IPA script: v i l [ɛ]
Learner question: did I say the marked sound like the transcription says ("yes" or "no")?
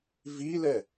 yes